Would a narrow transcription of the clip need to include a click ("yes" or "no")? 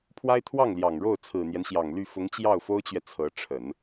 no